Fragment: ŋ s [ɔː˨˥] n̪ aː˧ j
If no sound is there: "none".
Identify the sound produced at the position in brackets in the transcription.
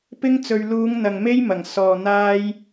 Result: ɔː˨˩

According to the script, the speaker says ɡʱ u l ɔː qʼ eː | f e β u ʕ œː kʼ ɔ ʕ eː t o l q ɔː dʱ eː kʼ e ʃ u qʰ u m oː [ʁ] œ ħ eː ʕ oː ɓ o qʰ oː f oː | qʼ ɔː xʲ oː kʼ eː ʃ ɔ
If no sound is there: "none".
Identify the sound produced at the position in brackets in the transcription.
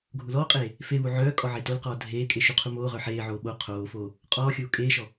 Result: ʁ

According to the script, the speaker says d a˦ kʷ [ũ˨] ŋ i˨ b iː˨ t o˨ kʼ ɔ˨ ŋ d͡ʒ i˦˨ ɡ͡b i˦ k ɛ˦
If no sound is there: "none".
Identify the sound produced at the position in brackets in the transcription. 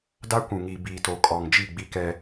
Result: ũ˨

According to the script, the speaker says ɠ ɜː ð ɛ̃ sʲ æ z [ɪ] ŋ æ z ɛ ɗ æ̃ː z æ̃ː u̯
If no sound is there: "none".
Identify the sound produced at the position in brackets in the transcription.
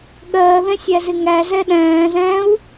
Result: ɪ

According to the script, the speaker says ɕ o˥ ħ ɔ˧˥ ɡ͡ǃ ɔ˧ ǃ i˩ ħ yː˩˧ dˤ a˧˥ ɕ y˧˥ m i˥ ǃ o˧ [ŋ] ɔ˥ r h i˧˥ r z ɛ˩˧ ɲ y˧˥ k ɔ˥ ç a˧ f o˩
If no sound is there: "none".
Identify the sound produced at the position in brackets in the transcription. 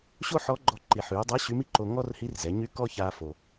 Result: ŋ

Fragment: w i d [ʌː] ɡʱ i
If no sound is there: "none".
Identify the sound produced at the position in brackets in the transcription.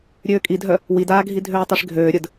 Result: aː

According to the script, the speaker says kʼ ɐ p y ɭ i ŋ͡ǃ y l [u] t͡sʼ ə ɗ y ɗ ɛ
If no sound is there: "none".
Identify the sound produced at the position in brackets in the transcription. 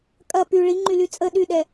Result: y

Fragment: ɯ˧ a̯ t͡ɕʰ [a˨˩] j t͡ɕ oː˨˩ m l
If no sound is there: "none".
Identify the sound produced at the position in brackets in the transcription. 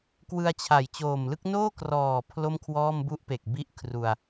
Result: a˨˩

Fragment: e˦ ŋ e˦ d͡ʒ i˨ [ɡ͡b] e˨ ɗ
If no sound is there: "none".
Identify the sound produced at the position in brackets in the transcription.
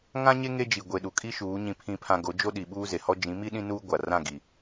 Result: ɡʷ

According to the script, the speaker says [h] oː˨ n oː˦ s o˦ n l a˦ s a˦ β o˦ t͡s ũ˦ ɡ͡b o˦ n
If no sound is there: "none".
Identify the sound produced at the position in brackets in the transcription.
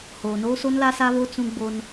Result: h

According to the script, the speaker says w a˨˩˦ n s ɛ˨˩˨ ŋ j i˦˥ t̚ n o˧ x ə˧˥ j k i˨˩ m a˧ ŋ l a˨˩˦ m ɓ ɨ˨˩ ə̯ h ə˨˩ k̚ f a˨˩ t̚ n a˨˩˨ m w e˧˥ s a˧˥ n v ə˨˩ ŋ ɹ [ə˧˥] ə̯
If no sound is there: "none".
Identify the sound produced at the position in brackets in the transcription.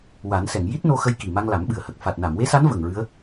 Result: ɨ˧˥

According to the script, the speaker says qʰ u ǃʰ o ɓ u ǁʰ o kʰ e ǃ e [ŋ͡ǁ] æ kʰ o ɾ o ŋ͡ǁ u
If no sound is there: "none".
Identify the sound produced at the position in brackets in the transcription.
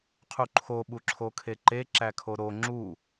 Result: ǁ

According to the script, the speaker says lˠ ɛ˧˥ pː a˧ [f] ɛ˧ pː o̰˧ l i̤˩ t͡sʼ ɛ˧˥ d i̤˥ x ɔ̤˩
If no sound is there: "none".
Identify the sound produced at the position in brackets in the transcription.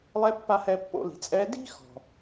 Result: h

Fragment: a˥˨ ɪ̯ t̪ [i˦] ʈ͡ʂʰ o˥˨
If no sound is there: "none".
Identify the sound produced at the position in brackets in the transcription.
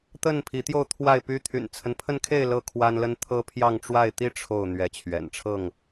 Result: i˦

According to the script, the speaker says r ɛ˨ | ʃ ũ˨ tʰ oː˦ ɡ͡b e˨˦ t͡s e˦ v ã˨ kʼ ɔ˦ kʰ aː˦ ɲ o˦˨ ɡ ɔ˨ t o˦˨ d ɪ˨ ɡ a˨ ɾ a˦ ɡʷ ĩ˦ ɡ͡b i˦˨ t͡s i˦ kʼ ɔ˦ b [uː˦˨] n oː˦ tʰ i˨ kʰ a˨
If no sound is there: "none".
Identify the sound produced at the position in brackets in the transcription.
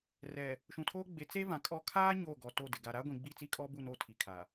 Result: u˦˨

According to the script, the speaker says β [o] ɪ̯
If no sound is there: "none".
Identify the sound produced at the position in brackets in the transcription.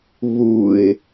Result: u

